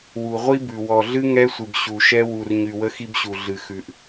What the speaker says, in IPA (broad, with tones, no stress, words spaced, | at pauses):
wu˨ ʁʷi˦ bʉ˨ wɔ˨ɮɨ˦ ŋɛ˦sʷɨ˨b ɕu˨ʃɛ˦ wu˨r ɲy˨wə˦xi˦bɕu˨ ɮɨ˨xʉ˨ʔ